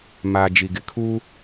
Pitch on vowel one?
low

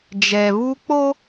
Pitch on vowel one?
low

